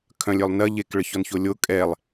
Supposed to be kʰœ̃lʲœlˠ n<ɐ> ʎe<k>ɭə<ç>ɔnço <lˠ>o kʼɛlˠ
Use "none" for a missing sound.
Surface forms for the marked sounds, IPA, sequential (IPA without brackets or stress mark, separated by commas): ɐ, k, ç, lʲ